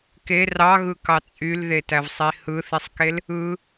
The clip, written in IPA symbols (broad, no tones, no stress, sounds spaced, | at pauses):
k e r ɑ ɣ ɯ k ɑ t͡sʼ y l ð e t æ v sˤ i h ɯ θ i sˤ k e l | ɯ